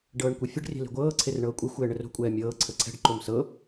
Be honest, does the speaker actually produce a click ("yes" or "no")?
yes